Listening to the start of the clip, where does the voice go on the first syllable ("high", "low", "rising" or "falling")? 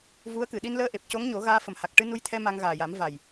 rising